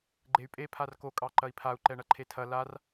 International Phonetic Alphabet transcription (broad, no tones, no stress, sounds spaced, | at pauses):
ɡ͡ǃ e y̯ pʼ e pʰ a r k o kʼ ɑ ǃ ɐ i̯ pʰ a u̯ ǃ ɛ ɳ ɐ ǃʰ e tʰ ɐ l a r